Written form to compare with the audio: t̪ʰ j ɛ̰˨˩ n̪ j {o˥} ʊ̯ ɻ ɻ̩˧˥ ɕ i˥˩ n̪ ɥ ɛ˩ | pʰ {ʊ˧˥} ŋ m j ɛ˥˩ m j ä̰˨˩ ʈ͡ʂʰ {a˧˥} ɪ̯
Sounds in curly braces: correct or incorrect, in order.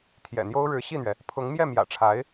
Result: correct, correct, correct

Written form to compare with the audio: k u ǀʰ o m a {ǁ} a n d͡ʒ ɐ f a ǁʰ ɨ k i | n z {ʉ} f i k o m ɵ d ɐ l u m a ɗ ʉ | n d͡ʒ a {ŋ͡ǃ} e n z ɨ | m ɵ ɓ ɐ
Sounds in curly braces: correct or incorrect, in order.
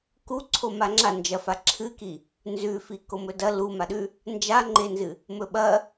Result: incorrect: ŋ͡ǁ, correct, correct

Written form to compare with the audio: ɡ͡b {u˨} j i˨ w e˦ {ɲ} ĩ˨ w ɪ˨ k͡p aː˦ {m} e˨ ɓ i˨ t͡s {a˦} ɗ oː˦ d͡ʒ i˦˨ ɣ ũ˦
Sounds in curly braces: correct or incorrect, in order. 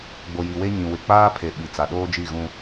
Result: incorrect: o˨, correct, incorrect: pʰ, incorrect: a˨

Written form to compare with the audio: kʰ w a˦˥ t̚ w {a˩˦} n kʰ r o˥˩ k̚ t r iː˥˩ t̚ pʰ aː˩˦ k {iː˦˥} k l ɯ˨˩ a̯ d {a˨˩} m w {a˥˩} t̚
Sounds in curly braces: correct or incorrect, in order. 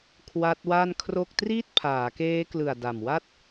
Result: incorrect: a˥˩, incorrect: eː˦˥, correct, correct

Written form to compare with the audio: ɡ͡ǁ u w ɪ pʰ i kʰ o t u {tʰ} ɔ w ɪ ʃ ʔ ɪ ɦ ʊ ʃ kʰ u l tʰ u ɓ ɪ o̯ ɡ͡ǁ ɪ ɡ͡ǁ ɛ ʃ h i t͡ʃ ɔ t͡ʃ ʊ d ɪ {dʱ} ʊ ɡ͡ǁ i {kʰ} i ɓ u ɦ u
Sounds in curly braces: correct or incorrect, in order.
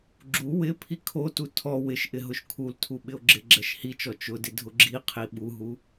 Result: correct, correct, incorrect: qʰ

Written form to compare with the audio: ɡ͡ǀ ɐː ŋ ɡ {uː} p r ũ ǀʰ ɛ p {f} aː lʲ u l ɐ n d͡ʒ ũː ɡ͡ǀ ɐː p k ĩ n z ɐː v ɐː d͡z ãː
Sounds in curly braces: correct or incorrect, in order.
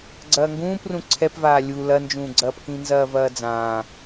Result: incorrect: ũː, incorrect: v

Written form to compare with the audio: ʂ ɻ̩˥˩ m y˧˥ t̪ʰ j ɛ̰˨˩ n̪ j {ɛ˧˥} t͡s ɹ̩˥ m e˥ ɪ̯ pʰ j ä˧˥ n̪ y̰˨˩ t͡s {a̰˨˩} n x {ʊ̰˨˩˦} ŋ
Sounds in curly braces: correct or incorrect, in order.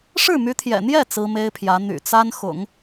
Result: incorrect: ɛ˥˩, incorrect: a˥, correct

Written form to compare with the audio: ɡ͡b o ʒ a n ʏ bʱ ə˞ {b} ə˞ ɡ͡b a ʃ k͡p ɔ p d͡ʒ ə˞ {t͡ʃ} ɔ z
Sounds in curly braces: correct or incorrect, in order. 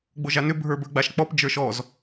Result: correct, incorrect: ʃ

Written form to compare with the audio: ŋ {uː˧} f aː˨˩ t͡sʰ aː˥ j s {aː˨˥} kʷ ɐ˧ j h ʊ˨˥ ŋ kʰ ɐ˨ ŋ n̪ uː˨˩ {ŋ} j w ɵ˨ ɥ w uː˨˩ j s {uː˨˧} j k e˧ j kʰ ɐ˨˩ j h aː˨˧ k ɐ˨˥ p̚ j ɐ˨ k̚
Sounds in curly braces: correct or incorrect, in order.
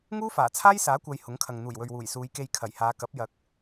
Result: incorrect: uː˥, correct, incorrect: none, correct

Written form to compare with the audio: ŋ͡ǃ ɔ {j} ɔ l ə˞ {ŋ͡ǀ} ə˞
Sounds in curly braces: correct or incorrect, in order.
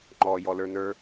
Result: correct, incorrect: n

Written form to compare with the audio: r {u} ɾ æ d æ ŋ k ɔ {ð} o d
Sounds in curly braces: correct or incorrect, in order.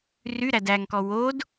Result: incorrect: y, incorrect: w

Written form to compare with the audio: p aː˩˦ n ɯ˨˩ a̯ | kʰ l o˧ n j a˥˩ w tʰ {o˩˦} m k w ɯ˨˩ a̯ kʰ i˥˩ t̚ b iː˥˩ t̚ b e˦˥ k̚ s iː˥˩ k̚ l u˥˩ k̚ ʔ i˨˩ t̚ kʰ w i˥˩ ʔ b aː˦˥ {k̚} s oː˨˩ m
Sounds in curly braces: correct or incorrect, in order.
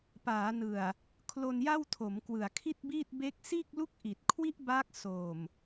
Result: correct, correct

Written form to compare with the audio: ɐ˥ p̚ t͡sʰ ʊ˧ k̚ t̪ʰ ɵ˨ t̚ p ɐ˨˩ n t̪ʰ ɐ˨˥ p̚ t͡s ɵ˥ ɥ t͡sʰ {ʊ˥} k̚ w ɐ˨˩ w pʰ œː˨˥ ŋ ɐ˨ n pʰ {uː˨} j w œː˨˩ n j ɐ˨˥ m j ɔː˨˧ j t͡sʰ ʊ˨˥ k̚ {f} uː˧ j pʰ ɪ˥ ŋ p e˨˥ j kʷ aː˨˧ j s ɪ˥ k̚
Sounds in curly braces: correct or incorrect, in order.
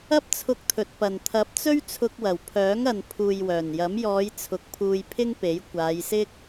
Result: incorrect: ʊ˧, correct, incorrect: pʰ

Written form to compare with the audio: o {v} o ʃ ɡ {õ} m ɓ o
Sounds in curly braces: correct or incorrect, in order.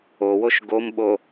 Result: incorrect: w, incorrect: o

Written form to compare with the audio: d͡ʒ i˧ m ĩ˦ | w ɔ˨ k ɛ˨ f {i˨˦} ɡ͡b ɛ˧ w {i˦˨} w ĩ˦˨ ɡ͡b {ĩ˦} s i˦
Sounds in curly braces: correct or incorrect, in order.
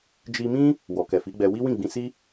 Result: correct, incorrect: i˦, incorrect: ĩ˧

